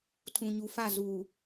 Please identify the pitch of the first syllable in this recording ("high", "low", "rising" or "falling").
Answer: low